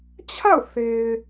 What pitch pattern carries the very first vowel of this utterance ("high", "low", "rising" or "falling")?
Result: falling